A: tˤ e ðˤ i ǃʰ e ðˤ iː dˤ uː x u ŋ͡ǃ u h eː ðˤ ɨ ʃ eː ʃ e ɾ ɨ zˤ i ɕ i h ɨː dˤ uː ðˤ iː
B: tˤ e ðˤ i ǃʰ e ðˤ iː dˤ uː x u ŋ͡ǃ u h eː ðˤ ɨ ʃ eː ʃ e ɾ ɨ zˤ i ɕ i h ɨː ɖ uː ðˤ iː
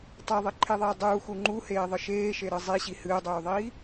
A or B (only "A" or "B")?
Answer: A